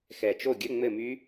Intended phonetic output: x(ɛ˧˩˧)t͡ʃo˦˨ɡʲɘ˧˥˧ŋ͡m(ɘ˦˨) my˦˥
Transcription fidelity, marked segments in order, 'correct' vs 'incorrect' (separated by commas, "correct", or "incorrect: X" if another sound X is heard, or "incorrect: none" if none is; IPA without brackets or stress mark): incorrect: ɛ˨˩, correct